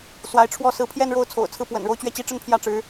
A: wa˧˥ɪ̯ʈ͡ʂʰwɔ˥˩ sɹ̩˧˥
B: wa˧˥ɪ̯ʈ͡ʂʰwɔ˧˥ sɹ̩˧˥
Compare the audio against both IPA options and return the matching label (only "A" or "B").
A